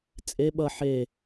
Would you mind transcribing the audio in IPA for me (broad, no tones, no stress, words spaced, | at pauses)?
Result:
t͡sʼe ɓʌ ħe